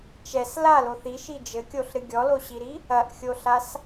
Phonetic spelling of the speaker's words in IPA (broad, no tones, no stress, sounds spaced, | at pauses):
t͡ʃ ɛ s l a l o θ i ʃ i d͡ʒ ɘ kʲ o ɬ ɾ ɨ ɡʲ ɔ l o ɕ i ɾ i | ɐ ʔ xʲ o ɬ a s